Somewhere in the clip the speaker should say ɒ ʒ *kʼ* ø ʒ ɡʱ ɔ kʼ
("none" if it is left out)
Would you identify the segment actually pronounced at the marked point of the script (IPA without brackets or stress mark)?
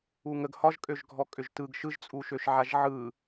kʼ